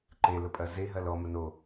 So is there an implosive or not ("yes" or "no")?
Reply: no